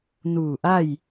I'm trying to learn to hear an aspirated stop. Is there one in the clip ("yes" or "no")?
no